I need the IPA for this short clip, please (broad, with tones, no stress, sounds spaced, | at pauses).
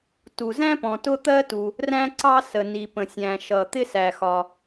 t u˩ z æ̃˥ p ɔ̃˩ t ʊ˥ t̪ ɜ˥ t u˩ | r æ̃˥ ǀ ɑ˥ s ə˩ n i˩ p ə̃˩ sʲ æ̃˩ ʃ ʌ˩ t̪ ɪ˥ s æ˩ x ɒ˩